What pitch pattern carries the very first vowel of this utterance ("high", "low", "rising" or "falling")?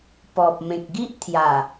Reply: low